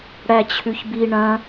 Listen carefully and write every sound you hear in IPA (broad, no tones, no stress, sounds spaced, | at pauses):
ɽ æ t͡ɕʰ ʉ ç b i ɳ ɐ̃